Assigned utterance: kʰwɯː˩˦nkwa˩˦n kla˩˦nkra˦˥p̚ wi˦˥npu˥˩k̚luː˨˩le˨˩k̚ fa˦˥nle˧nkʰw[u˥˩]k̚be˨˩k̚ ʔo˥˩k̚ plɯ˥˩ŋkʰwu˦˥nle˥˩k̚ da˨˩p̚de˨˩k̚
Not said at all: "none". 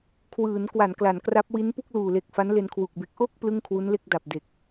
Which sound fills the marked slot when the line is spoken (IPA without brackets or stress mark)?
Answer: u˨˩